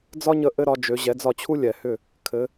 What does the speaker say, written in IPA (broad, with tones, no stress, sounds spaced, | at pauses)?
d͡z ɒ˥ ɲ ə˧ ʔ ɘ˥ ɾ ɒ˩˥ d͡ʒ ø˩˥ ʑ ɛ˩˥ d͡z ɒ˥˩ t͡ɕʰ u˥ lʲ ɛ˩ h ʏ˥˩ | kʰ ɘ˩˥